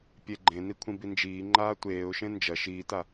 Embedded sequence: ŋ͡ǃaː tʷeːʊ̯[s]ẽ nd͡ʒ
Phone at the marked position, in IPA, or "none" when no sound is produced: ʃ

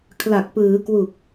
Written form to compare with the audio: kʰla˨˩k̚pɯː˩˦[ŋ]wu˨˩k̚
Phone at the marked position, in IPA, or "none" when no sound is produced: k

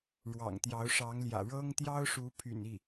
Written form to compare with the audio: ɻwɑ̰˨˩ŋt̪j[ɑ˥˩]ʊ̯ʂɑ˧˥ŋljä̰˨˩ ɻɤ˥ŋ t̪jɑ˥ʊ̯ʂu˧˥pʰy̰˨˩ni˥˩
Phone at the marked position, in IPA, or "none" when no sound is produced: ɑ˧˥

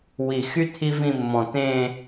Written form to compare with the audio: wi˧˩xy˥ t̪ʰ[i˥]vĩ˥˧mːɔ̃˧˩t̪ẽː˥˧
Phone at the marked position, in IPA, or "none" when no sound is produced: i˥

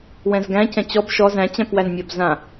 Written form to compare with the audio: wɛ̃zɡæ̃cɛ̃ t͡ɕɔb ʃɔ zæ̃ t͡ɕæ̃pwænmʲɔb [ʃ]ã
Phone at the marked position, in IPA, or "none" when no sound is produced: z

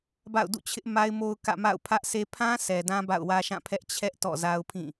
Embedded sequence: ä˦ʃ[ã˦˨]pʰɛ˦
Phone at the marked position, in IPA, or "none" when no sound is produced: ã˦˨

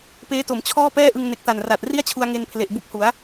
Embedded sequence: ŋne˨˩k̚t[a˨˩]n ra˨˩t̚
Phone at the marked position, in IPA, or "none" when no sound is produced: a˨˩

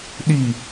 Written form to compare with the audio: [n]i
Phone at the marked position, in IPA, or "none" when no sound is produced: ɗ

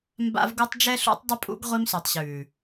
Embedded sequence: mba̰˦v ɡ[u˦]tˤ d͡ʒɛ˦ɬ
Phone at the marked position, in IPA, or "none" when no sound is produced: u˦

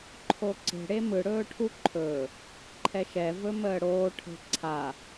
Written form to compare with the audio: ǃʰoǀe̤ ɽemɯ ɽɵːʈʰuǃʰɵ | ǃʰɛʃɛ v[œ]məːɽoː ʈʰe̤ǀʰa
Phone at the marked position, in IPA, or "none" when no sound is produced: ɵ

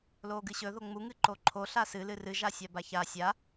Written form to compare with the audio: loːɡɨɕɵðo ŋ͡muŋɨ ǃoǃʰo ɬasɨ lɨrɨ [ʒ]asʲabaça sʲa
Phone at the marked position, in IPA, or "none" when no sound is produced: ʒ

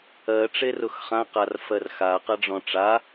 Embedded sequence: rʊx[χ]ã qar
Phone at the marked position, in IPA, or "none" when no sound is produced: χ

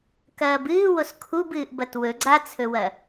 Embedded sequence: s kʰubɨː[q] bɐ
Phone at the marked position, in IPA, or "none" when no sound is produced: ʔ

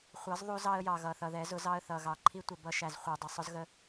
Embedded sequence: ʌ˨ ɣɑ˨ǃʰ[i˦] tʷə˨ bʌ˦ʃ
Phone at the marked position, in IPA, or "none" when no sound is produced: i˦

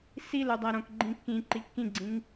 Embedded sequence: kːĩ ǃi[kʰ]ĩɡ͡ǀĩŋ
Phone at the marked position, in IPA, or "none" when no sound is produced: kː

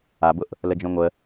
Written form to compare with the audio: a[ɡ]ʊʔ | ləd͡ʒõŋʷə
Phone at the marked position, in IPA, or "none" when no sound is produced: b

